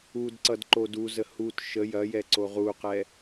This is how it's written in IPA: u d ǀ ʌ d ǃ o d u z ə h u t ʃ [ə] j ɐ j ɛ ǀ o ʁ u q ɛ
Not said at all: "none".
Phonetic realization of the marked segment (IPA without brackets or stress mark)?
ə